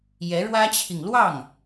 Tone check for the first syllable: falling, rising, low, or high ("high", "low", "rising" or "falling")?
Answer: rising